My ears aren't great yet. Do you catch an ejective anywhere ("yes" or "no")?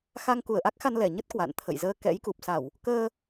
no